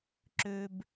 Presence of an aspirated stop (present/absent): absent